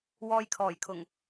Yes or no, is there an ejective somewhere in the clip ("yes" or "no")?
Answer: no